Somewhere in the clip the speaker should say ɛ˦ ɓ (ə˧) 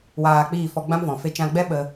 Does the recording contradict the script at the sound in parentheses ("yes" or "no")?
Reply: no